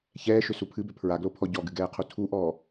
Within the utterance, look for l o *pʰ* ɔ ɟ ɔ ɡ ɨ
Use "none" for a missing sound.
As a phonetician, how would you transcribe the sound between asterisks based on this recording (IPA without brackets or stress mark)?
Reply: pʰ